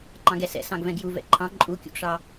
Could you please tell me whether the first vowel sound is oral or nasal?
nasal